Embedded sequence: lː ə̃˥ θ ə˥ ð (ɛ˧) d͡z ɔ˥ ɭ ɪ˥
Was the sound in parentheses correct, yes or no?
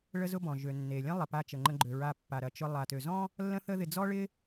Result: no